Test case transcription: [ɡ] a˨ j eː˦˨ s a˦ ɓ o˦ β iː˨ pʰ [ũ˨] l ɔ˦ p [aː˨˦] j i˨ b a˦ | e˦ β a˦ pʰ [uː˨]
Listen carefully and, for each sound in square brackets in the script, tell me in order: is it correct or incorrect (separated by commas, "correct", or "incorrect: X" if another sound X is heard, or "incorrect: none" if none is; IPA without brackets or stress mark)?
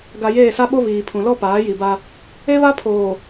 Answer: correct, correct, correct, incorrect: oː˨